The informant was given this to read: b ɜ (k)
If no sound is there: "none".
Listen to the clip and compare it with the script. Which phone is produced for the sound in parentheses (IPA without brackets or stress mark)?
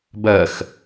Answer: x